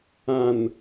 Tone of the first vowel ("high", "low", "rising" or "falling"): low